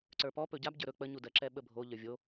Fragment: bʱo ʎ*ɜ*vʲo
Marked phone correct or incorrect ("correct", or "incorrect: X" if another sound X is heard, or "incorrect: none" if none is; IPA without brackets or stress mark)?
incorrect: ə˞